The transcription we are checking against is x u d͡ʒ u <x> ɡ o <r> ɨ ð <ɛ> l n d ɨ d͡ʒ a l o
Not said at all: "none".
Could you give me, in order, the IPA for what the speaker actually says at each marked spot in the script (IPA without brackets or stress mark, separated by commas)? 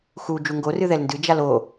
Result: ŋ, r, ɛ